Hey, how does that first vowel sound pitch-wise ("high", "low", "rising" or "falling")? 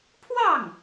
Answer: falling